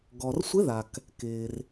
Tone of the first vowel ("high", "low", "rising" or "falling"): low